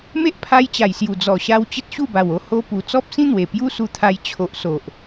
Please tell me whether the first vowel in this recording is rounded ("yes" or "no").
no